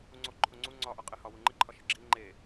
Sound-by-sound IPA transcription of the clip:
uŋ͡ǀo ǃʰoŋ͡ǀu ŋ͡ǀɒʔɒ qʼehɒ wuŋ͡ǃiǃʰɒʃe ɡ͡ǁi ŋ͡ǃe

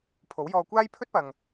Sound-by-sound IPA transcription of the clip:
pʰo˨˥wjɔː˧ kʷaː˥jpʰɵ˥t̚pɐ˨ŋ

